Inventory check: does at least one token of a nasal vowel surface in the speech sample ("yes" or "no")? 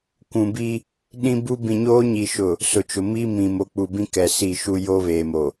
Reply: yes